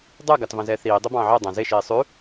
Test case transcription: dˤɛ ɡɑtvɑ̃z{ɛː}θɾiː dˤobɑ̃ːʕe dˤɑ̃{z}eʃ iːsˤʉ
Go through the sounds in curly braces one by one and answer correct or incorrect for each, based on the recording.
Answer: correct, correct

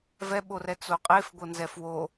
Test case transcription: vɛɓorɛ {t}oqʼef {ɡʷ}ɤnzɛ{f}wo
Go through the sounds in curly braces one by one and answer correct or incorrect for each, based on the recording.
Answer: incorrect, correct, correct

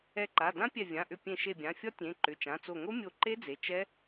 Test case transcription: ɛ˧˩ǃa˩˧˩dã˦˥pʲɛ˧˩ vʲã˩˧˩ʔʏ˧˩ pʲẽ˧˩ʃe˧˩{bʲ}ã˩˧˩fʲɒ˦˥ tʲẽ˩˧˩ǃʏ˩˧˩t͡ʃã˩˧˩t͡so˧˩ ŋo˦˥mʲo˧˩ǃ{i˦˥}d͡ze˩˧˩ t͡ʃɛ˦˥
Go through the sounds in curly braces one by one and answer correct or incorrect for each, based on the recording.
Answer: correct, incorrect

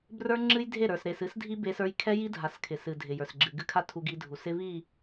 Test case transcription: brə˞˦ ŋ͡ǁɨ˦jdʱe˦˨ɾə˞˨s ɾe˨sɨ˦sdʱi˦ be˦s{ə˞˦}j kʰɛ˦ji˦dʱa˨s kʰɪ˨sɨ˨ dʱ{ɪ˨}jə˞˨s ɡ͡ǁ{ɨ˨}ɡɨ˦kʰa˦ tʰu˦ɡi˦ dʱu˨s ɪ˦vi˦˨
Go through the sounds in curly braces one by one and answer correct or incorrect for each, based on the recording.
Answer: correct, correct, correct

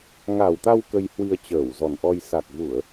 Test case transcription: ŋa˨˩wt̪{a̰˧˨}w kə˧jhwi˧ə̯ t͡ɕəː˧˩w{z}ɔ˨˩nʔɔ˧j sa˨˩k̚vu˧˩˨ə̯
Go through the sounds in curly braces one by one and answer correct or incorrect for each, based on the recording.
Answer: incorrect, correct

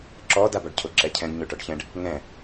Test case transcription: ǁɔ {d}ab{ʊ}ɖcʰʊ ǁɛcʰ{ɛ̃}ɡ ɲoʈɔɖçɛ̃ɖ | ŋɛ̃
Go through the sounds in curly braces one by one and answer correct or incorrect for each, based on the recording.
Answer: correct, incorrect, correct

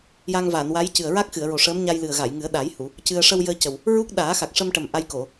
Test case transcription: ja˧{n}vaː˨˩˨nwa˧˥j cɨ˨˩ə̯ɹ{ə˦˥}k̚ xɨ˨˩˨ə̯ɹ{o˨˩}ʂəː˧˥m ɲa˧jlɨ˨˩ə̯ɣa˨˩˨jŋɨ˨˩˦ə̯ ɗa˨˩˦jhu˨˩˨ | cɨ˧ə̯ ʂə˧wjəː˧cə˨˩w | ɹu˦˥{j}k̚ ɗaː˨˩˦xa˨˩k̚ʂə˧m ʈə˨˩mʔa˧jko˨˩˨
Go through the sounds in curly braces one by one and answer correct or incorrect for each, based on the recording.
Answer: incorrect, incorrect, correct, incorrect

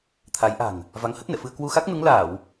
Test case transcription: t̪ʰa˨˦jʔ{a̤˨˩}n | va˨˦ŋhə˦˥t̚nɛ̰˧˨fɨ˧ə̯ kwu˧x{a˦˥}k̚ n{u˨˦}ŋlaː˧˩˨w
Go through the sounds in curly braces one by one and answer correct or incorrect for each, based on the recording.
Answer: correct, correct, correct

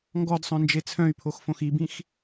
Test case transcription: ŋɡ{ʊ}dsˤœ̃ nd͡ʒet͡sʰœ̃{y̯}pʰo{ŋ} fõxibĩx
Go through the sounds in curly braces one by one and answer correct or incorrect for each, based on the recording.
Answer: incorrect, correct, incorrect

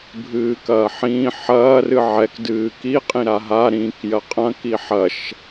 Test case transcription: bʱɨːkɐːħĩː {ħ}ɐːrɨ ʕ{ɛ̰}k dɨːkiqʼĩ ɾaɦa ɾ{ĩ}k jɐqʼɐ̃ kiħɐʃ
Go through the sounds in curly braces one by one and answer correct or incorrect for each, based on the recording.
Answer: correct, incorrect, correct

